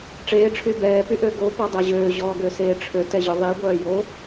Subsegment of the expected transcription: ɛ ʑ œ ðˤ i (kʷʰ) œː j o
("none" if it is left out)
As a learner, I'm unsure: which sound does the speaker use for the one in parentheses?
ɡʷ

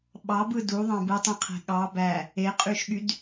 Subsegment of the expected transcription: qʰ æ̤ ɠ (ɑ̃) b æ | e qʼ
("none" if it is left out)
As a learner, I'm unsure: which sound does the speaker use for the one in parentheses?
ɑ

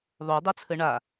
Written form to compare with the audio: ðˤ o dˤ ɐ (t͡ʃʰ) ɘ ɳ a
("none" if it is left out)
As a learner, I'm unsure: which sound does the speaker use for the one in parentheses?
t͡sʰ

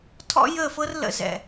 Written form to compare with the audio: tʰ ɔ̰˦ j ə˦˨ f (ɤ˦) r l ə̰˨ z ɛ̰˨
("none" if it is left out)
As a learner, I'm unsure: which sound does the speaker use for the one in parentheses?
ɤ˦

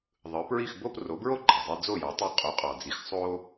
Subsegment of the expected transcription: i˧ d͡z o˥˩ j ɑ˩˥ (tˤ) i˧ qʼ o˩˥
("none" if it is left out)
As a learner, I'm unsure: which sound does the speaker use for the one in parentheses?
tˤ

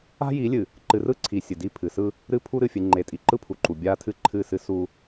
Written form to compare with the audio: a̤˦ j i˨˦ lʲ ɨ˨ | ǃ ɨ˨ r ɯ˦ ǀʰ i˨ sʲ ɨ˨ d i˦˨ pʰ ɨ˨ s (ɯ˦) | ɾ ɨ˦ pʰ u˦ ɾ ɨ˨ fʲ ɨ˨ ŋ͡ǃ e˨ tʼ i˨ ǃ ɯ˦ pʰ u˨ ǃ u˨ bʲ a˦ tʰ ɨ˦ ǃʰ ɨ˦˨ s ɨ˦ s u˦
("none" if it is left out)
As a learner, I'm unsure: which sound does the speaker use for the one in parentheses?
ɯ˦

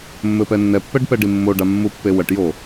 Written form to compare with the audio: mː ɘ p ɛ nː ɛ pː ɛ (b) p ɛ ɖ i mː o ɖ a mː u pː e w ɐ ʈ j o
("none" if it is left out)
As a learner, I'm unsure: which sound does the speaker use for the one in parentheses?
ɖ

